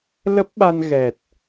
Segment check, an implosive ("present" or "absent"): present